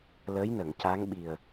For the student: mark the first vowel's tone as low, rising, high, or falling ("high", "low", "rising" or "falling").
rising